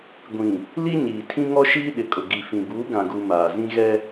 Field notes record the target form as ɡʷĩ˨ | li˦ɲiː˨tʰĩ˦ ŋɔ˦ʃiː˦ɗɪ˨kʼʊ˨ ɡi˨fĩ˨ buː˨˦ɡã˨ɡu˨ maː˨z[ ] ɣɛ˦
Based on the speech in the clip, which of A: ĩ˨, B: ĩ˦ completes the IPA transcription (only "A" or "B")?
B